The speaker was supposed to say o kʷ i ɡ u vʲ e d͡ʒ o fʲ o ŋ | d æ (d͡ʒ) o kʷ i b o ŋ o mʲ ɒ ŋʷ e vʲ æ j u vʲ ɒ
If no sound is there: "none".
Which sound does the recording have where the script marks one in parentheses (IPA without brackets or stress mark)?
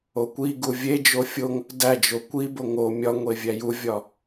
d͡ʒ